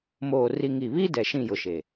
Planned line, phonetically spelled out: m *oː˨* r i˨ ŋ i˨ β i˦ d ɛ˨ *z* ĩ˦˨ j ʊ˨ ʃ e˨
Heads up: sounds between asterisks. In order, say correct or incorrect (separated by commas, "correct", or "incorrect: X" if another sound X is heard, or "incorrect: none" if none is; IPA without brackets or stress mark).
correct, incorrect: ʃ